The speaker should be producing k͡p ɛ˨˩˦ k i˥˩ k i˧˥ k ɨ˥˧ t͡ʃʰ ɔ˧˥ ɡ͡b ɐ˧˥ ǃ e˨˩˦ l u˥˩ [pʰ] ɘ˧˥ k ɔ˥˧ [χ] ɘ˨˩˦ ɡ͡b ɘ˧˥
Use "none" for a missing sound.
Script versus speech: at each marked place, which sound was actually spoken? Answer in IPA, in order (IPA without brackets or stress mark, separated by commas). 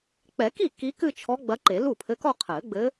pʰ, qʰ